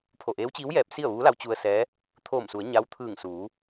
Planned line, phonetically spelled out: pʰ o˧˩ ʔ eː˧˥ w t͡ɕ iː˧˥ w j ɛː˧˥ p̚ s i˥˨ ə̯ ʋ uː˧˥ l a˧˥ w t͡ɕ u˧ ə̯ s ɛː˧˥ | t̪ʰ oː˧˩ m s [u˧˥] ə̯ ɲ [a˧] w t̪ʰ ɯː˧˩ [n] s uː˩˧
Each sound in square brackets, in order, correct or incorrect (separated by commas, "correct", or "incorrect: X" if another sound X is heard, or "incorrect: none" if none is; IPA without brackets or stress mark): incorrect: u˩˧, incorrect: a˧˥, incorrect: ŋ